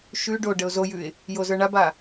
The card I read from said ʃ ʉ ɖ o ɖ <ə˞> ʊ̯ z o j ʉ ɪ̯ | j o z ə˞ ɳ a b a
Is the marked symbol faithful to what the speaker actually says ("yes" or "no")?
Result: no